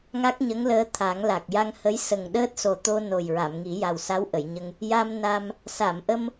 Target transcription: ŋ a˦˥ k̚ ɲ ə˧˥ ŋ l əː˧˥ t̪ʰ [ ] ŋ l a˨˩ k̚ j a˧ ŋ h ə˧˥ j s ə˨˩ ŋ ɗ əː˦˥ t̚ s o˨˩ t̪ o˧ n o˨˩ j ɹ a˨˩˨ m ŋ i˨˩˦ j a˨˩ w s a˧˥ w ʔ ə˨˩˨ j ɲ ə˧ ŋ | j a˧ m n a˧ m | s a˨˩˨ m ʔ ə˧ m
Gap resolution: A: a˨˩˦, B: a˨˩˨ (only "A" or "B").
A